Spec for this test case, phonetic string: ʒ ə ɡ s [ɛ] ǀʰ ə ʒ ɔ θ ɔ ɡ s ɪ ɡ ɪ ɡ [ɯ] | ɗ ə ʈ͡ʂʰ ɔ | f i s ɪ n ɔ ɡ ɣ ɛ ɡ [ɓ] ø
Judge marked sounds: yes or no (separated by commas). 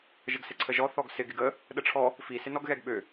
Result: no, no, yes